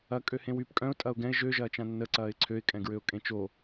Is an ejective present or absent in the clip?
present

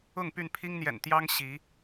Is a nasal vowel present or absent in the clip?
absent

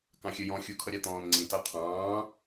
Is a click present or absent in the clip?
present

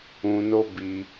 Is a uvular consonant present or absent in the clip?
absent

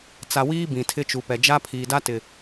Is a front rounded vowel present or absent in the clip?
absent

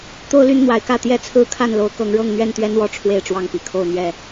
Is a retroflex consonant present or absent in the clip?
present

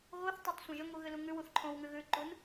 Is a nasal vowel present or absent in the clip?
present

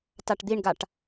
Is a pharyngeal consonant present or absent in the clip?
absent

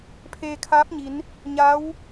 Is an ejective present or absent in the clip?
absent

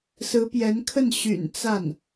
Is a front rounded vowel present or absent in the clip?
present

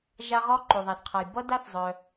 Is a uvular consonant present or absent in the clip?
present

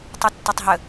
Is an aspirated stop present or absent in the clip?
absent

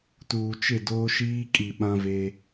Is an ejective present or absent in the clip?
present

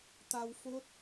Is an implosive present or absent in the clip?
absent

